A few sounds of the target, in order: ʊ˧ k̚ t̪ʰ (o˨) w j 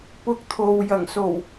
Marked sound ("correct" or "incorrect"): correct